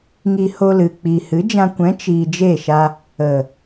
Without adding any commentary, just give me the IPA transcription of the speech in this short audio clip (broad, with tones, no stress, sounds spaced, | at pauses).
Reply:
ŋ i˧ h o˧ l ɨ˨ k͡p iː˨ h ɨ˨˦ d͡ʒ ã˧ kʷ ɛ̃˨˦ t͡ʃ iː˨ d͡ʒ e˦˨ ʃ a˧ | ə˨